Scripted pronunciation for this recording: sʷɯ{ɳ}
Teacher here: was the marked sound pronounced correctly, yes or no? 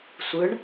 yes